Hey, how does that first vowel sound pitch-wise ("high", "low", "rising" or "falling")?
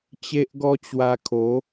high